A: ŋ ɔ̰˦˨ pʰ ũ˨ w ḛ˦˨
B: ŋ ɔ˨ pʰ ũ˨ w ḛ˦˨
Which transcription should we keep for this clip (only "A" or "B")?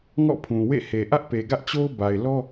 A